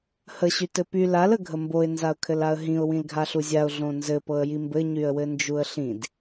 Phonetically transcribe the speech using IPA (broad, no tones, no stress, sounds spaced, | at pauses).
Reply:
h ə ɕ y t ɘ p y l a l ə ɡʱ ə m b o ɪ̯ n z a ʊ̯ kʰ ɘ l a ə̯ ɦ ĩ ʊ̯ w ĩ l ɡʱ a ɬ u zʲ a ʊ̯ ɮ õ n z ɘ p ɤ ə̯ j i m b ɘ ɲ y ə̯ w ɘ n d͡ʒ u ə̯ ɬ ĩ d